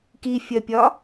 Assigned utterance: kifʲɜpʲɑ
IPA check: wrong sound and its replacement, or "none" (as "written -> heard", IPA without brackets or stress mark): ɑ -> ɒ